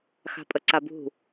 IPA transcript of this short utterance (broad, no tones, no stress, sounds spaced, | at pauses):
x a̤ pʼ ə ǀ a b ṳ